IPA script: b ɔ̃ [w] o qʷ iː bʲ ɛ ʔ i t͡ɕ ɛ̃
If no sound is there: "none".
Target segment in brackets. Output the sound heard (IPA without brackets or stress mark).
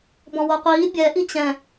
w